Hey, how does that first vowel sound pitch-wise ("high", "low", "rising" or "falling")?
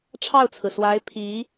falling